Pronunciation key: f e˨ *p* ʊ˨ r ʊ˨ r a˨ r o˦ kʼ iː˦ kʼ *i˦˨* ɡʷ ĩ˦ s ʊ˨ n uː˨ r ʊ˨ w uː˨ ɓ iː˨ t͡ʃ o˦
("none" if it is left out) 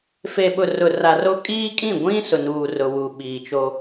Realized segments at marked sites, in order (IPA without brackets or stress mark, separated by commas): ɓ, ĩ˦˨